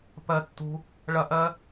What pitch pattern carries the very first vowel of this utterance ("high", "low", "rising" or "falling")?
low